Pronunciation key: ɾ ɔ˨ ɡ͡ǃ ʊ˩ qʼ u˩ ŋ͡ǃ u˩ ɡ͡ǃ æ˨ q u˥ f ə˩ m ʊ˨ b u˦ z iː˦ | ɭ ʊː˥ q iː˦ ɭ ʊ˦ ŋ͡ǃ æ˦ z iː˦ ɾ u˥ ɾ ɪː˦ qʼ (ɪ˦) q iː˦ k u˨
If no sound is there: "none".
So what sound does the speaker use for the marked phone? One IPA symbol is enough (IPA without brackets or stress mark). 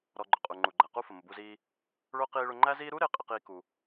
ɪ˦